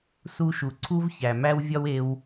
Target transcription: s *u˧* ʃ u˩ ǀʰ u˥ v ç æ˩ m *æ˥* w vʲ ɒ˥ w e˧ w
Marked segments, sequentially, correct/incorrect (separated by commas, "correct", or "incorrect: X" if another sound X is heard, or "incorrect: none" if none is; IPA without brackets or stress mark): correct, correct